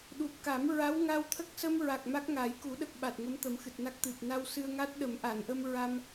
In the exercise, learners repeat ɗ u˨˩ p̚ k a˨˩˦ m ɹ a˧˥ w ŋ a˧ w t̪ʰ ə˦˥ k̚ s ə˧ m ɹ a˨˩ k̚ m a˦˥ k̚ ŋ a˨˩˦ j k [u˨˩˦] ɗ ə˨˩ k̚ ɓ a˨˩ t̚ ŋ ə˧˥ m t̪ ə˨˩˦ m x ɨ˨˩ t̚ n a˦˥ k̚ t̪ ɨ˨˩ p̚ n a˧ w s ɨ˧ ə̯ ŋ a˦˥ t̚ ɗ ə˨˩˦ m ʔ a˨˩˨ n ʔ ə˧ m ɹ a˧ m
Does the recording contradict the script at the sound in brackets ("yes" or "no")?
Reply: no